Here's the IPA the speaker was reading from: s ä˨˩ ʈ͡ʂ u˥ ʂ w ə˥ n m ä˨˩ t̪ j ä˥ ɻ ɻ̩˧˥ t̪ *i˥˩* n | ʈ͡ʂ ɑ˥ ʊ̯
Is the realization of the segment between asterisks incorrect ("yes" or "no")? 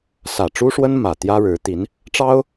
yes